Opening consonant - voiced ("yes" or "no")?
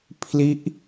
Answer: no